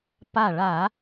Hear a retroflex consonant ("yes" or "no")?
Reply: yes